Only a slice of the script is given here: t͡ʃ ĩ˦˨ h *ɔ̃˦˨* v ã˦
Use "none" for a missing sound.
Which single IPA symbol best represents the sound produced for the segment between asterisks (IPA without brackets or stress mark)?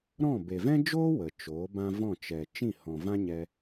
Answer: ɔ̃˨